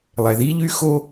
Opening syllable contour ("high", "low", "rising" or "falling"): low